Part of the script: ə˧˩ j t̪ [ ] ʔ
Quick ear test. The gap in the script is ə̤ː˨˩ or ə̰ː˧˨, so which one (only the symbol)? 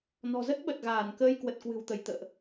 ə̰ː˧˨